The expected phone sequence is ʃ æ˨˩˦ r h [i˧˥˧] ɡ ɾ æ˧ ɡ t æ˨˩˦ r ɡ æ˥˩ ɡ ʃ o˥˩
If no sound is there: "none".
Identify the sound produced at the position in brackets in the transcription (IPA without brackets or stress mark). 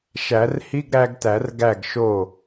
i˧˥˧